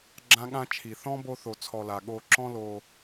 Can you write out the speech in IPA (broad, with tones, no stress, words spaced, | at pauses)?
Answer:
ɡ͡ǁã˦ɠã˦ t͡ʃʰi˩θɔ̃˦ bo˥θo˨t͡sʰɔ˨la˩ ɠo˨ǁɔ̃˦ lo˨